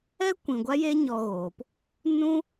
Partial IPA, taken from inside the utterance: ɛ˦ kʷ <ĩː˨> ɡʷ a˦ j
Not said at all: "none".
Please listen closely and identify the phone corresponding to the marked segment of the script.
ĩ˨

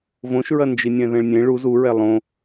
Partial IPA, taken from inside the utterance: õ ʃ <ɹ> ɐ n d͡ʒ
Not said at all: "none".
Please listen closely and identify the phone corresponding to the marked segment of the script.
ɹ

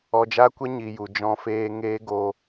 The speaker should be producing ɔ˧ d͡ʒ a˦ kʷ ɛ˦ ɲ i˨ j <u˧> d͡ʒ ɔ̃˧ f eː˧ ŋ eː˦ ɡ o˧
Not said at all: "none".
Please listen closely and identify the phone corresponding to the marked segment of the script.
u˨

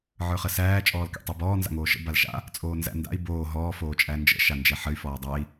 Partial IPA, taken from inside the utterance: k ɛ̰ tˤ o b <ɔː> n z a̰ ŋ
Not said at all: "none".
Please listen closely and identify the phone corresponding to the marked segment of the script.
ɔː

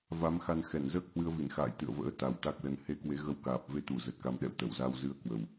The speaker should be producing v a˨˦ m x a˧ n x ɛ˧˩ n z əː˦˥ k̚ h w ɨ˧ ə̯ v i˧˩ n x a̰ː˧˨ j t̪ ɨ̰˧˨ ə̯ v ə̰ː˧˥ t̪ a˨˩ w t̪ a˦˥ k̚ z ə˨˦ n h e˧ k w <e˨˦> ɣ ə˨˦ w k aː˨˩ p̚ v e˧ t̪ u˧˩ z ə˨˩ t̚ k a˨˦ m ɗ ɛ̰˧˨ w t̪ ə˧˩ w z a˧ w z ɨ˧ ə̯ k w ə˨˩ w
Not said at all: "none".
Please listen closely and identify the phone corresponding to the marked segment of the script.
e˨˦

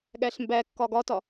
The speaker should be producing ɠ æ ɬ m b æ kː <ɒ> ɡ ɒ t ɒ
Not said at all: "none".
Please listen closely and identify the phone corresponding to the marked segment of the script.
ɒ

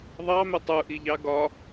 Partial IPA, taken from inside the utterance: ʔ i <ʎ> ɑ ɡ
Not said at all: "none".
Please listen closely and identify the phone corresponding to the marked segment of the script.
ʎ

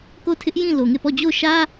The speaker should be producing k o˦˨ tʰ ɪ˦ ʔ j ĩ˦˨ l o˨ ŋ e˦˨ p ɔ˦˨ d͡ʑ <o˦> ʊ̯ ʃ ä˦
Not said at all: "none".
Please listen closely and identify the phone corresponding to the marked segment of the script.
o˦˨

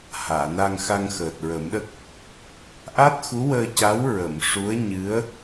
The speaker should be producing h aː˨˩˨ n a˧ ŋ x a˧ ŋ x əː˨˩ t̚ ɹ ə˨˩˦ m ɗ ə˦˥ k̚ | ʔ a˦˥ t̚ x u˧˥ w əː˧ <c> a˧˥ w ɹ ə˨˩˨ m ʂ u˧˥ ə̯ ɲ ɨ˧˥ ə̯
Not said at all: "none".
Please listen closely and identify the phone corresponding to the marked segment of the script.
c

